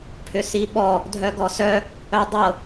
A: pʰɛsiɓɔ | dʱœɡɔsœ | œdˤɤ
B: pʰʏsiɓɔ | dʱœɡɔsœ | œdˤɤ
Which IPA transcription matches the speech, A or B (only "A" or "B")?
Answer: B